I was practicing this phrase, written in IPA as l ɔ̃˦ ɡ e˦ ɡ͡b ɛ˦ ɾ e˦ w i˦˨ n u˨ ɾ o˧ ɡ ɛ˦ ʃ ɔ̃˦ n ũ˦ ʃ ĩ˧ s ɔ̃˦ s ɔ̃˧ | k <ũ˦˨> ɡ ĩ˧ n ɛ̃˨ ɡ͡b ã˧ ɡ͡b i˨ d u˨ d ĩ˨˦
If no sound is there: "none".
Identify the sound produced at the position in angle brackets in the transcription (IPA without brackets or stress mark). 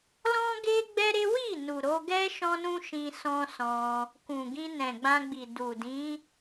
ũ˨